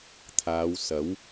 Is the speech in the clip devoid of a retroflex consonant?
yes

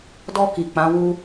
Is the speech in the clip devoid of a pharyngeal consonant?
yes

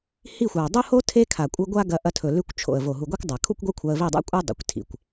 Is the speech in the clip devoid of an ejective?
no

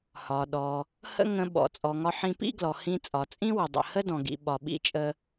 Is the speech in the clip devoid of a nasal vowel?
no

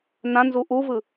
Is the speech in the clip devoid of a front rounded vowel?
yes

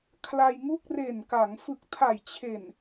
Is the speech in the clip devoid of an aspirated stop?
no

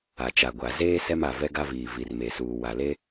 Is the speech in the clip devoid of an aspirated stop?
yes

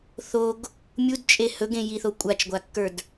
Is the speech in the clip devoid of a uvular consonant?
yes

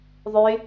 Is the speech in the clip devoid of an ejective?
yes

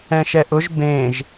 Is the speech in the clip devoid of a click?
yes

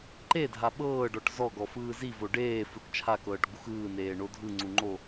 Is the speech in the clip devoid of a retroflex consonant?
no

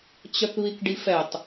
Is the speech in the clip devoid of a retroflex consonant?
no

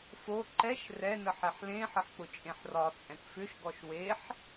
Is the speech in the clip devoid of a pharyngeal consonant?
no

